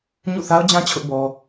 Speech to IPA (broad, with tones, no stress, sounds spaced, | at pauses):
ɲ ṵ˦˨ θ a˦ ʊ̯ d͡ʑ ã˦ t͡ɕʰ ʊ˦ ʔ b ɔ˦